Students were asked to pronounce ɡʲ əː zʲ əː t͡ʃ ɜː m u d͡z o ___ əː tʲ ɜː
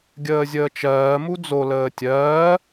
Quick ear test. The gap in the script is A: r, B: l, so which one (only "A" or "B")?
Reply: B